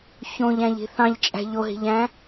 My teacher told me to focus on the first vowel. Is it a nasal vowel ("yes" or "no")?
yes